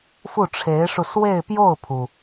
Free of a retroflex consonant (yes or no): no